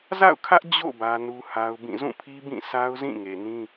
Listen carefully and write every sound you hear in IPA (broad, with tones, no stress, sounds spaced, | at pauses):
z a̰˦˨ ʊ̯ kʰ ä˦ ʔ d͡ʑ o̰˦˨ b ä˦ n u˦ h a˦ ʊ̯ b ĩ˦˨ z ũ˦˨ pʰ i˦ b ĩ˦˨ s a˦ ʊ̯ z ĩ˦˨ ŋ e˨ n ĩ˦